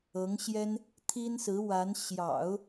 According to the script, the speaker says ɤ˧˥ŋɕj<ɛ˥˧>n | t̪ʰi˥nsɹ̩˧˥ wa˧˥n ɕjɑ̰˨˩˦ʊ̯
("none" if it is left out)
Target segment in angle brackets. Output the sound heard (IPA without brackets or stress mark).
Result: ɛ˥